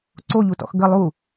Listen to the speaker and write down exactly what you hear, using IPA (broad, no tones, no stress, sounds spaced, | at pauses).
ǀ o ʎ u t ɔ̰ x ɡ ə lˠ u